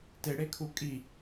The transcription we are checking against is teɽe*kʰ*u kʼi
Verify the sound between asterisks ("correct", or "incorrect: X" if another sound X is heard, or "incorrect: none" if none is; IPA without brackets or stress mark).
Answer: correct